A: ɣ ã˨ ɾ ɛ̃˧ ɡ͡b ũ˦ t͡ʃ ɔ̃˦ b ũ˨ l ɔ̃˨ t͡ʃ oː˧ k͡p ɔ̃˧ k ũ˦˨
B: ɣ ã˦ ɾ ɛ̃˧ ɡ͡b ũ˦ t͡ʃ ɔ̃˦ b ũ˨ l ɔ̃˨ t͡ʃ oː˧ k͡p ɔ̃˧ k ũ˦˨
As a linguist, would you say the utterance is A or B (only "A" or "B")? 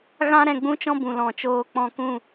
B